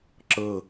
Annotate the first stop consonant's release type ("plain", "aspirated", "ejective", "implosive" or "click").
click